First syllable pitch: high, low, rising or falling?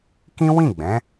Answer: high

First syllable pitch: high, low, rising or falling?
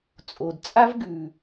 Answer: low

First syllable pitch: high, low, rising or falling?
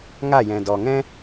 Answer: falling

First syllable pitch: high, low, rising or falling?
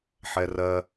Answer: low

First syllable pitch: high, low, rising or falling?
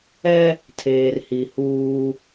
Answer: high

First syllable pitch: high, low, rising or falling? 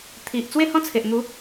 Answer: low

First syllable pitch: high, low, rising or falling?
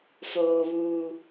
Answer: high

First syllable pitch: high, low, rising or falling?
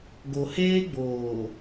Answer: low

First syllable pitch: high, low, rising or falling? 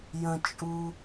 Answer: low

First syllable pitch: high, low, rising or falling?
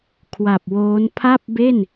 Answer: low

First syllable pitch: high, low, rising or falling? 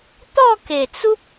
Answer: falling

